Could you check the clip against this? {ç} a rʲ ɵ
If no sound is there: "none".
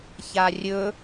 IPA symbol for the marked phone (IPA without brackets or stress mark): ç